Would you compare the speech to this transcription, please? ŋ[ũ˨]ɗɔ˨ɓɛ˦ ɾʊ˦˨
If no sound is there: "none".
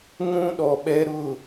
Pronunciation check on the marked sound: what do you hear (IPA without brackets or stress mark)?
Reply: ũ˦